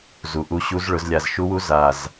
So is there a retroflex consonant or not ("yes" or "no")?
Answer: yes